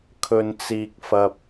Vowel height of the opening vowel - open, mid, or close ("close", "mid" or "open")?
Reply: mid